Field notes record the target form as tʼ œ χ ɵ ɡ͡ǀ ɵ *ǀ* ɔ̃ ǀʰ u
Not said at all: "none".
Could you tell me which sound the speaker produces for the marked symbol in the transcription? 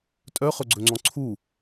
ŋ͡ǀ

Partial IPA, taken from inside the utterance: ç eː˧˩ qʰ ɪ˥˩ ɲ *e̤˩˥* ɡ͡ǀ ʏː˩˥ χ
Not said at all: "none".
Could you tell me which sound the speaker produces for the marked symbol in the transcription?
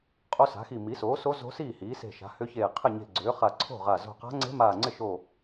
e̤˧˩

